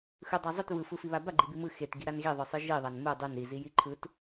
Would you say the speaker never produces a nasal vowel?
yes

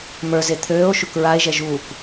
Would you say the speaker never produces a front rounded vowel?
no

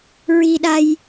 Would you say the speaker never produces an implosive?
no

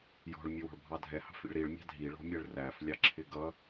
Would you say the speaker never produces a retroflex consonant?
no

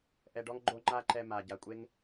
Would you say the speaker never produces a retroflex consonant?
no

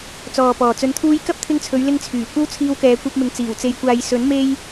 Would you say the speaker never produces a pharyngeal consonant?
yes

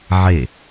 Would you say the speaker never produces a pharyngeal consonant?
no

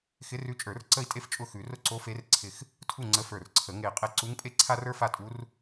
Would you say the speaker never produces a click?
no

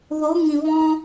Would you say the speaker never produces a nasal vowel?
no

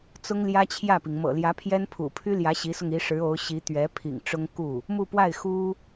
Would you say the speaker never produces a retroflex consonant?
no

